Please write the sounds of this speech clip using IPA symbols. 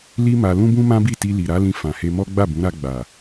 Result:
li˦ma˧ lũ˦bũ˦mã˦bi˦˨ ti˧li˨ɾa˨˦lĩ˧ fã˨he˧mɔ˦ ɡ͡ba˦˨bũ˨˦ɾa˧ ɡ͡ba˨

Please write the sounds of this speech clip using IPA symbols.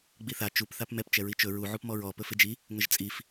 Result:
ɡ͡biθa t͡ʃup θapmɛp t͡ʃɛɹit͡ʃɵ ɹu ʕupmɔɹɔ pɵfɪd͡ʒi | ŋəʒt͡sʼif

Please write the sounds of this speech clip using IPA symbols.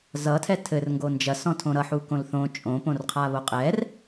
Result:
zʌtʰɛ tʰɘrŋɡo nd͡ʒɐsɔ̃tʰõ ɾʌħukõl θõ t͡ʃʼõpõrqʰaβo qʼɛr

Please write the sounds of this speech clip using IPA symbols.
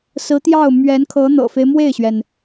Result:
sɹ̩˧˥t̪jɑ˥˩ʊ̯ mɥɛ˧˥nkʰɤ˧˥n̪ɤ̰˨˩fe˦ɪ̯ mwe˥˩ɪ̯ɕɥɛ˩n

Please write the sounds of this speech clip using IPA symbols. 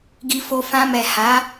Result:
ɡi˧fo˧ fã˧mɛ˨ ha˨˦

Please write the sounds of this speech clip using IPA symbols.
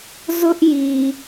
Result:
zʊ˦ʔ ji˨

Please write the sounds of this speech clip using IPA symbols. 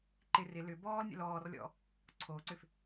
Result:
ǃɪ rɪ lʏ bɔːlnʲə̰ lɔːrlʲɔ̰ | ǀʰoːǀʏf

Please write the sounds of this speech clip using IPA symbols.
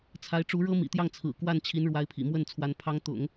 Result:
t͡sʰa˧˥ɪ̯ʈ͡ʂu˧˥ɻɤ˥ mḭ˨˩t̪jɑ˥˩ŋ t͡sʰɹ̩˨˩kwa˥˩nt͡ɕʰi˧˥n ɻwa˧˥ɪ̯pʰḭ˨˩mwə˥˩nt͡sʰwa˧˥n pʰɑ˧˥ŋt̪ʊ̰˨˩˦ŋ

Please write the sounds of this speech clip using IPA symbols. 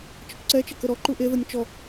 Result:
t͡ʃəkʷǀɛt͡ʃə kəɾɔǃu ʔeðənʲ t͡ʃɔ

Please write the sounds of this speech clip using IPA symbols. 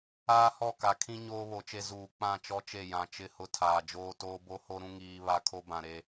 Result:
aː˦hɔ˦˨ ka˨kʰĩ˦ ɲoː˦βo˨t͡ʃe˦ zuː˨ k͡pã˦˨ t͡ʃɔ˦t͡ʃe˦˨ jã˨ t͡ʃɪ˦˨hʊ˦ tʰaː˨d͡ʒoː˦toː˦ bo˦ho˦ɾũ˦ ŋiː˦ βa˦kʰo˦bã˨ ɾe˦

